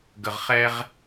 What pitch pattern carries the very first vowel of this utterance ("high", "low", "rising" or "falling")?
low